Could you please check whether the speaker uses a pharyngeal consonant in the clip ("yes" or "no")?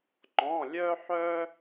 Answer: yes